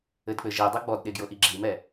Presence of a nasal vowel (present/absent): absent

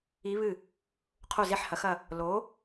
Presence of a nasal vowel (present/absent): absent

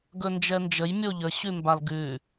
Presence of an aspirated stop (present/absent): absent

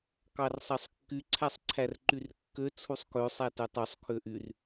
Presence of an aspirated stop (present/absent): present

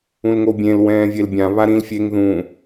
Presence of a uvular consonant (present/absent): absent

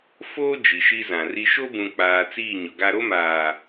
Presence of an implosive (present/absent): absent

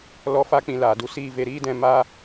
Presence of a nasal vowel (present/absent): present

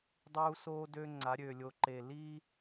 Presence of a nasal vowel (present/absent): absent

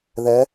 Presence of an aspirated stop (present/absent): absent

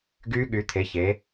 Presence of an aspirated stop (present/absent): present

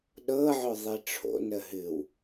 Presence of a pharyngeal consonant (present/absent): present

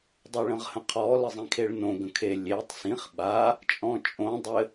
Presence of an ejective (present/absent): present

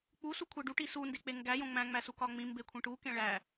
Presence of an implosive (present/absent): absent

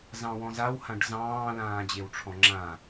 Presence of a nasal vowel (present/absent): present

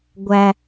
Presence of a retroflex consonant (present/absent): absent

